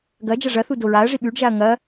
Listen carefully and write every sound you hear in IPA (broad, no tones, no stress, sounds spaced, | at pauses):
ɡ ɐ d͡ʒ ɐ ʐ ɐ θ u d o ɹ a ɐ̯ ʐ i ɓ ʉ ɖ ʒ a ɐ̯ ŋ ɐ